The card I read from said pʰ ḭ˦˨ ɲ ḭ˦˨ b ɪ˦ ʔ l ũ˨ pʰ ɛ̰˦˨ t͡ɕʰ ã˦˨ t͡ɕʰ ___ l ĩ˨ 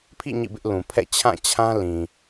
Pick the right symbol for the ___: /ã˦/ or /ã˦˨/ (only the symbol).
ã˦